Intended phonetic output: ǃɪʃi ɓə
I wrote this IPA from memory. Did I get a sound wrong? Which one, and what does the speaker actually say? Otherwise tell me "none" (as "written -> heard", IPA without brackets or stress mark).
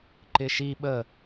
none